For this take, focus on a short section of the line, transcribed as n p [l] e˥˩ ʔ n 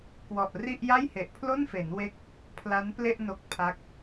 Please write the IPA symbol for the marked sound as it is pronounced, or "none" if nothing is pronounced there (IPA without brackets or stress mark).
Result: l